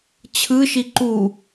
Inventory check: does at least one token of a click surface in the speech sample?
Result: yes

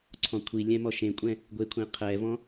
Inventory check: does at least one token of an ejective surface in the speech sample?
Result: yes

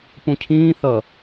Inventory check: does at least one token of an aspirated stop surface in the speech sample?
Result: yes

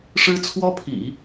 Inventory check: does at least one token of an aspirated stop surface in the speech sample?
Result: yes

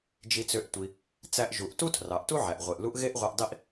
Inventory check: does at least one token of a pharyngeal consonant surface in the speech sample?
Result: yes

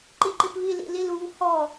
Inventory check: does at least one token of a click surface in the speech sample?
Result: yes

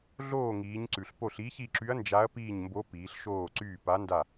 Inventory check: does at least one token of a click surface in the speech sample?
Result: yes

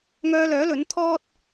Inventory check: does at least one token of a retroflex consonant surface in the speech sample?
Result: no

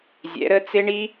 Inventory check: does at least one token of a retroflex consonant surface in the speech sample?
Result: yes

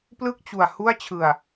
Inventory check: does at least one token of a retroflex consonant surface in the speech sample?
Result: no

